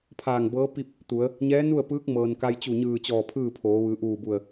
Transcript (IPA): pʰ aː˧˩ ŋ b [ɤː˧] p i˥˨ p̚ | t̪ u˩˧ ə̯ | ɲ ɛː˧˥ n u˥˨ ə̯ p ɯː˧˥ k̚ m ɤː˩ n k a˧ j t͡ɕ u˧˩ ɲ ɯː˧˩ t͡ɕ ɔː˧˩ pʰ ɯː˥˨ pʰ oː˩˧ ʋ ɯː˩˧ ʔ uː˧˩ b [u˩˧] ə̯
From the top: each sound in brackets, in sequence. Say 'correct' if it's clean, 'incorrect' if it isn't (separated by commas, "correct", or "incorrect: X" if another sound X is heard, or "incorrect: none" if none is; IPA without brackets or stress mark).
incorrect: ɤː˧˥, incorrect: u˧˩